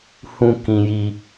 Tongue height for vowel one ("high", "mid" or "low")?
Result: high